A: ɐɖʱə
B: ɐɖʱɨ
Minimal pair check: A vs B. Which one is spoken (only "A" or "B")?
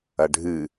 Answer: B